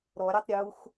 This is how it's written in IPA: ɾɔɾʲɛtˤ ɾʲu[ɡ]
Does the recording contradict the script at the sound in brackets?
yes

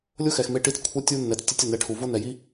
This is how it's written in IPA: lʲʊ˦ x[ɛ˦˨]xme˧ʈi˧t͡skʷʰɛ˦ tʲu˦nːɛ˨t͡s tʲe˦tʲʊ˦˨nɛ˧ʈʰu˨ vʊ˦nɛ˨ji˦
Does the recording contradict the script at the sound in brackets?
yes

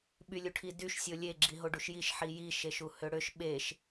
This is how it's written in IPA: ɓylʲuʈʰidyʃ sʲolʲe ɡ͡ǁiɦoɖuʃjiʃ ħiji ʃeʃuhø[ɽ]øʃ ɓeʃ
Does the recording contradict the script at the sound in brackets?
no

